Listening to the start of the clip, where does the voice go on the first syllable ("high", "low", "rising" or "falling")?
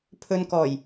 low